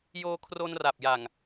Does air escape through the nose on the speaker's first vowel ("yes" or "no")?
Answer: no